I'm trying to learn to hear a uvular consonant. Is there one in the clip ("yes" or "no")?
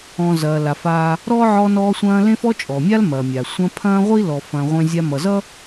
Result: yes